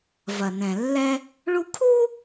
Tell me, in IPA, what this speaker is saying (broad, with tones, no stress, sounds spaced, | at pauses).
v ɐ˩ n ɛ̃˩ lː ɛ˥ | ɭ u˥ kʰ u˥